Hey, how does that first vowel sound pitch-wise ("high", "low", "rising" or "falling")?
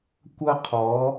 high